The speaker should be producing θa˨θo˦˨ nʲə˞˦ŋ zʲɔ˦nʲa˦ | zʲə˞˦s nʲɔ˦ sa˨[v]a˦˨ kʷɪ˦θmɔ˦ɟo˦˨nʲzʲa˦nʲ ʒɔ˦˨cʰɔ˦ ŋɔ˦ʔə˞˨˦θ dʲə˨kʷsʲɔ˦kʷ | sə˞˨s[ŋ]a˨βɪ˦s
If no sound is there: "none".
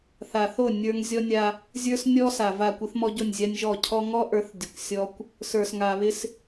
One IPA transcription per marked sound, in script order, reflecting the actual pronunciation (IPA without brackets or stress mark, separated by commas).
v, ŋ